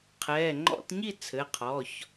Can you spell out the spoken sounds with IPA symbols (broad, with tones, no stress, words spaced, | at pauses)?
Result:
qʰɛː˩˧˩ ŋ͡ǃɔ̰˧˩˧tɲi˥˨ t͡sʰɘ˩˧˩qʰɔ˩˧˩ç